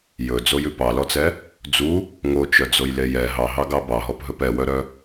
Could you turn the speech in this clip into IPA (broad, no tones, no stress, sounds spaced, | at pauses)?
j ɵ d͡z o j ʉ p ɑ l ɔ t͡s ɛ | d͡z u | ŋ o t͡ʃ œ d͡z o j l e j ɛ ɦ ɑ ɦ ɑ ɡ ɑ b ɑ ɦ ɔ p ɦ ɵ p ɛ w œ ɾ œ